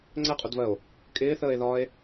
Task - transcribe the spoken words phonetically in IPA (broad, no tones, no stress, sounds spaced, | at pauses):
ŋ͡ǀ ɛ qʼ u d v ɜ o̯ | kʼ ɪː θ əː e̯ ð ɒː e̯